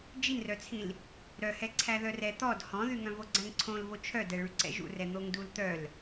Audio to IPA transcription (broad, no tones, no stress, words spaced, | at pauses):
d͡ʒinrœt͡sʰĩl | ɾœhɛ ǀʰæðœrɛ t̪ɔd hɔ̃ðy ŋœ̃voɡ͡ǀæ̃ŋǀʰõl vot͡ʃʰœdɛ ɭyǀɛ̰ʒṵrɛ n̪oŋdult̪œl